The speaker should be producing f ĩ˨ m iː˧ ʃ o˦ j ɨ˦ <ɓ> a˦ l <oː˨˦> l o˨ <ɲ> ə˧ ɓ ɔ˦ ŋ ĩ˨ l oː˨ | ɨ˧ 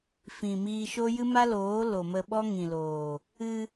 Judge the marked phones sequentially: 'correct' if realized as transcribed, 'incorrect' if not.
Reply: incorrect: m, correct, incorrect: m

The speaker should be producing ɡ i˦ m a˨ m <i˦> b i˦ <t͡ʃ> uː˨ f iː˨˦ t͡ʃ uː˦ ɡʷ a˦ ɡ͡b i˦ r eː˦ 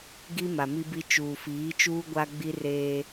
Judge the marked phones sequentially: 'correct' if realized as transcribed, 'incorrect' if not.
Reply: correct, correct

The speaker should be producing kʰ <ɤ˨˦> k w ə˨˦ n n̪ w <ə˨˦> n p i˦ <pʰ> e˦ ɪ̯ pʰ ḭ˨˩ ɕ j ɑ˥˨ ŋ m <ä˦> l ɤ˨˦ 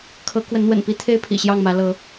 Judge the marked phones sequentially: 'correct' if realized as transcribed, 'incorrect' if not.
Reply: correct, incorrect: ə̰˨˩, incorrect: t̪ʰ, incorrect: ä˨˦

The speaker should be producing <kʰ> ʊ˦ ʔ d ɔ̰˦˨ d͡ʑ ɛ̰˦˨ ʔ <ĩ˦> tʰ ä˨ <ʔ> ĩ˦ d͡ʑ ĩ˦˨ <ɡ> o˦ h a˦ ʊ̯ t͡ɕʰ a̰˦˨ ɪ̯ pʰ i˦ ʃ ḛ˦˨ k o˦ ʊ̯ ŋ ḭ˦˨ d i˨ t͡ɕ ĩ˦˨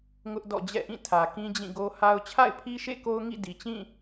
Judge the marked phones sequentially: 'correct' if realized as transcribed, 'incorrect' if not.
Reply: incorrect: ŋ, incorrect: ĩ˦˨, incorrect: k, correct

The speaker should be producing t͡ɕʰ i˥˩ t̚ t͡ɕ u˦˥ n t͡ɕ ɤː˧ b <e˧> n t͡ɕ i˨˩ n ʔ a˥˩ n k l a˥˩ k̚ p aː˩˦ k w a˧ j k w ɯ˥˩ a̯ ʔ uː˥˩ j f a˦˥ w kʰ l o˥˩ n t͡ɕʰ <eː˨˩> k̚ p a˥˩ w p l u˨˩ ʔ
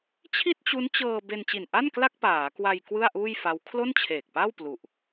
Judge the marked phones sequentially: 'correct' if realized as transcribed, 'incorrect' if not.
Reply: correct, correct

